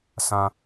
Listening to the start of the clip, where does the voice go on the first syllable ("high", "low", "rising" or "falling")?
low